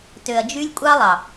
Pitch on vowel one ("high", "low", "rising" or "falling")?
low